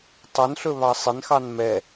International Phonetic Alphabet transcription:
tˤɵnɬɵβɑ sˤɪnxɑn mɛ

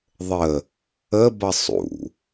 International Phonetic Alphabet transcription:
ðˤə | əbʌ sˤṵ

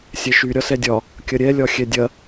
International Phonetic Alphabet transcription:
sʲɛʃy ɾʲɒsɛdʲɒ | kʲɐɾʲɛ lʲɒxʲɛdʲɐ

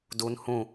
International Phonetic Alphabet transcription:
dun hũ

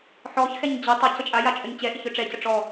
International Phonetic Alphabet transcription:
ħɔçxɛɲ d͡ʑɪ tˤɪ cət͡ʃʼaja t͡ʃʼœɲt͡ɕɛʔɪç œʈ͡ʂɛcə ʈ͡ʂɔ

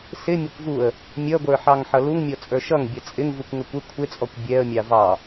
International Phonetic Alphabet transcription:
sɪ mʲʌkʷvuə̯ | mʲʌɡʷə˞ħɑŋ ħʌluŋmʲɔt͡sʼə˞ ʃʌŋ bʲʌt͡sʼɪŋ vukʷŋəkʷɪ kʷʰɪt͡sʼɔkʷ bʲɛə̯mʲɑ vɑ

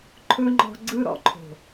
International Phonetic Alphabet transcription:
ǃʰɵ˦ŋ͡ǃɔ̤˧ɡ͡ǀɯ˦ ɾɔ̰˧ǃʰo̤˨

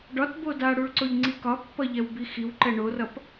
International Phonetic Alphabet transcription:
ɖɒtbo daɽuɭǀoʎŋ͡ǀi kɒpːʌʎɛwbi xiwǃɛ ɳorʌp

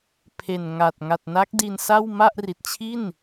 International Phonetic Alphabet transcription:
pʰe˨˩nŋa˨˩t̚ ŋa˨˩t̚na˦˥k̚di˧nsa˥˩w ma˥˩ʔri˨˩t̚t͡ɕʰi˥˩n

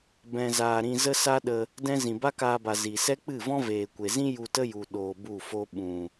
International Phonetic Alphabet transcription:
bɛ̃˧zaː˧ ɾĩ˧zə˦sa˦ɗə˧ | dɛ̃˦ zĩ˨ba˦kaː˧ba˨ zi˨ sɛ˦k͡pɨ˦˨vɔ̃˦ veː˨kʷe˨zĩ˦ ju˧tə˦ju˨ ɗoː˧bu˦˨fo˦ ɓũ˨

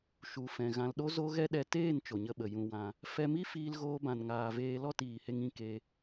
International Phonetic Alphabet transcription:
ʃu˨ fɛ̃˨ɣã˧lɗo˦ zo˦ɣɛ˦ ɗɛ˧ teː˦˨n t͡ʃo˨ɲə˧ɓə˨ jũ˧wã˧ | fɛ˧mi˦ fiː˦lɣoː˦bã˧nŋaː˧ veː˧lɔ˦˨tiː˨he˧ŋ ĩ˧ke˧

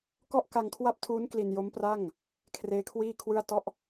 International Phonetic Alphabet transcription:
kɔ˥˩ʔka˧ŋkʰwa˥˩p̚tʰuː˦˥n kli˧njo˦˥mpra˥˩ŋ | kʰreː˦˥kʰwiː˥˩kʰwɯ˥˩a̯ tɔ˥˩ʔ

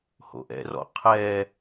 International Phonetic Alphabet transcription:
ho̰ʔɛ̰rɔ̰ qʰɛ

